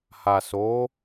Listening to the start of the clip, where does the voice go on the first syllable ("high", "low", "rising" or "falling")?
low